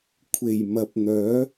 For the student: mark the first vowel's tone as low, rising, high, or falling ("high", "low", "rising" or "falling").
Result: low